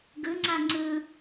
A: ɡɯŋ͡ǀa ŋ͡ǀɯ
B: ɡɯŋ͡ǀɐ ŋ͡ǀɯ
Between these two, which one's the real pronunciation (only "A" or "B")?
A